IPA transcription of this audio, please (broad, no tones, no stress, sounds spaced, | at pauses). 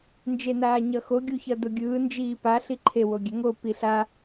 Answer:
n d͡ʒ e n aː ɲ ʌ x o ɡʲ u ç ʌ d o ɡʲ ɯː n d͡ʒ iː p a ɬ i ǃʰ e w o ɡʲ ɛ ŋ o p i ɬ a